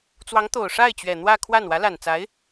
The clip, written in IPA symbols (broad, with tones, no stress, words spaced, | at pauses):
t͡swɑ˧˥ŋt̪o˨˩ʊ̯ ʂa˥˩ɪ̯t͡ɕɥɛ˨˩ n̪wä˥˧kʰwa˥˩n wä˧˥la˨˩nt͡sa˧˥ɪ̯